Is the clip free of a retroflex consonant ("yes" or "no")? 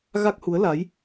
yes